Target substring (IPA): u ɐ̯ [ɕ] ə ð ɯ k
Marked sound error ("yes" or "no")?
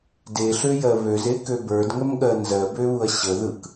no